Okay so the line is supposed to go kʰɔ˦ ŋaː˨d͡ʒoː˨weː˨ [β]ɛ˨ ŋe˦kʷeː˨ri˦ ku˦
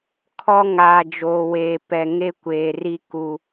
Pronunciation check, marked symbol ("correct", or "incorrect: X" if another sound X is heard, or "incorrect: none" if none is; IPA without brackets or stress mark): incorrect: p